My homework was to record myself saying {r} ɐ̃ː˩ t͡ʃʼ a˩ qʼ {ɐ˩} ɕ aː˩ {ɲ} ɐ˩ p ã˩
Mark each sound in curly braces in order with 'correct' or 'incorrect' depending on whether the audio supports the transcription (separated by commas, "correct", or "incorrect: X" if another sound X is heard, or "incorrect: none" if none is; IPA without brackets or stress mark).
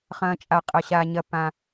incorrect: χ, correct, correct